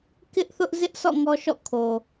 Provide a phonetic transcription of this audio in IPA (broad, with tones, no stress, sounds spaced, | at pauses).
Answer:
k ɪ˦ ʔ θ ʊ˦ ʔ z ɪ˦ ʔ sʰ ɔ̰˦˨ ŋ ɔ˦ ʃ ɔ̰˦˨ kʰ o˨